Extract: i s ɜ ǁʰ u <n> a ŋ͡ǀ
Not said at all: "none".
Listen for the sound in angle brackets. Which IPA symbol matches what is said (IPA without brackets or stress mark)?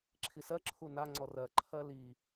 n